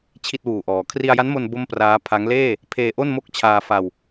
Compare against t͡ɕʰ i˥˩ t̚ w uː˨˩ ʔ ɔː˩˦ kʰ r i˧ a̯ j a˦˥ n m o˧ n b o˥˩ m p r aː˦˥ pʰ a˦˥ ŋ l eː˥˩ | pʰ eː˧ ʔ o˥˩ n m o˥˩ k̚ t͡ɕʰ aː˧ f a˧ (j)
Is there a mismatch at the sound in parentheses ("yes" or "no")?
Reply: yes